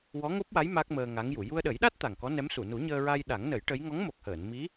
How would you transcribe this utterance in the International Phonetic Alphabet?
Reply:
w ɔ˧˥ ŋ o˦˥ p̚ w a˧˥ j m a˦˥ k̚ m əː˧ ŋ a˧˥ ŋ j u˨˩˨ j u˧ ə̯ ɗ ə˨˩˦ j ɗ a˦˥ t̚ t̪ a˨˩ ŋ k ɔ˧˥ n ɛ˧˥ m s u˨˩˨ n u˨˩˦ ɲ əː˧ ɹ a˧ j ɗ a˨˩˦ ŋ n ə˨˩˦ j ʈ ə˧˥ j ŋ ɔ˧˥ ŋ m o˨˩ k̚ h əː˨˩˨ n m i˧˥

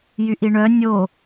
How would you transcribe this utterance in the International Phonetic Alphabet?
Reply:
j y ʔ i ɳ œ nʲ o

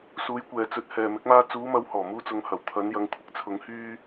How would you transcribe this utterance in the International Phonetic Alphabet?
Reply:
s uː˨˧ j kʷ ɛː˨ t͡s ɵ˨˥ t̚ h ɛː˨ m ɪ˨˥ k̚ m aː˧ t͡s uː˨˧ m ɐ˨˧ w h ɔː˨˩ m uː˧ t͡s ʊ˨˧ ŋ h ɐ˨˩ w t̪ʰ ɐ˨˧ n j ɐ˨˧ ŋ kʷʰ ɪ˥ k̚ t͡sʰ ʊ˨˧ ŋ h yː˧

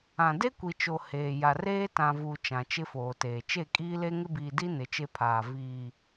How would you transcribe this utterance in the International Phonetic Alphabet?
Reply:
ã˨ d e˦ kʷ i˨ t͡ʃ o˨ h eː˨ j a˨ r eː˦ t ã˨ v u˨ t͡ʃ ã˨ t͡ʃ ɪ˦ f oː˨ t eː˨ t͡ʃ e˦˨ kʼ iː˦ l e˦ ŋ ɪ˦ b iː˨ d i˦ n ɪ˨˦ t͡ʃ e˦ pʰ aː˨ v iː˨

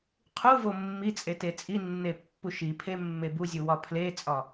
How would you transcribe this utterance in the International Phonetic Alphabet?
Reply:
qʰ u v o mː i t͡sʼ e t e t͡sʼ i nː e pː u ʃ i pʰ e mː e b u zʲ u w ɒ pʰ l e t͡sʼ ɒ

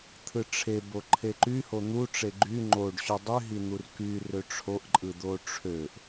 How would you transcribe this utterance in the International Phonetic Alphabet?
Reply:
t̪ʰ ɯ ʈ͡ʂʰ e b o ǃʰ e ǃ y h o n̪ u ʈ͡ʂ e ɡ͡ǃ y ŋ͡ǃ o ɖ ɕ ø dˤ y ɦ i n̪ u r k y r ø ʈ͡ʂʰ o ʔ ǃʼ ɯ d̪ o ʈ͡ʂʰ ø ʔ

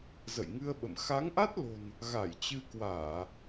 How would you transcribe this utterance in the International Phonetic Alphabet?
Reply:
z ə̰˧˨ j ŋ ɨ˧ ə̯ ɓ ə̰˧˨ m x a˨˦ ŋ ʔ a˦˥ t̚ l o̤˨˩ n | ɣ a˧˩ j t͡ɕ ɨ˧ k w aː˧˩˨

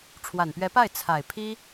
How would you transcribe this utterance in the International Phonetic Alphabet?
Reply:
ʈ͡ʂʰ w a˨˩ n p ɥ ɛ˧˥ p a˥˩ ɪ̯ t͡sʰ a˨˩ ɪ̯ pʰ i˥

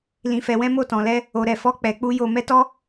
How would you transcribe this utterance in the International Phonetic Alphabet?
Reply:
l ĩ˧ f ɛ˧ w ɛ̃˦ m o˦˨ t ɔ̃˧ l ɛ˦ | o˧ ɾ ɛ˧ f ɔ˦ k͡p ɛ˧ k͡p u˦ j o˧ m ɛ˦ t ɔ˦

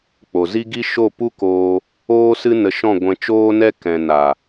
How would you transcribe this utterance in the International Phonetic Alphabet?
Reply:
k͡p o˨ z i˦ ɡ i˦ ʃ o˦˨ p u˦ k oː˧ | oː˦ s ɨ˦ n ə˧ ʃ ɔ̃˦˨ ɡʷ ɛ̃˧ t͡ʃ oː˦ n ɛ˦ k ɛ̃˨ n a˨

